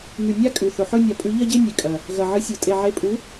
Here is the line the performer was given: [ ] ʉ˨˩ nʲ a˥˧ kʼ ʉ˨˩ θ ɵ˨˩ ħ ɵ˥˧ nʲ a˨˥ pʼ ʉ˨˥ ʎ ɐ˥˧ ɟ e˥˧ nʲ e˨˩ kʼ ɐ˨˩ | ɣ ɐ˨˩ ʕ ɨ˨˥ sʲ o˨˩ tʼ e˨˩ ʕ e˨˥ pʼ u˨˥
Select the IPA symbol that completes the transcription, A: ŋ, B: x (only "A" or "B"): A